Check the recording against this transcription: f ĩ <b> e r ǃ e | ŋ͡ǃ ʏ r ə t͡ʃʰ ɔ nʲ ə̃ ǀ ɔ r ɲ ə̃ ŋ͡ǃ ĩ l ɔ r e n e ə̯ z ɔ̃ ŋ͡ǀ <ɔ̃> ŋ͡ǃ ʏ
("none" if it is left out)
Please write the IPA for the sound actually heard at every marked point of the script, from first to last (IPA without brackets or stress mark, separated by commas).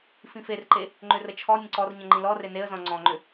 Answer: f, ɔ̃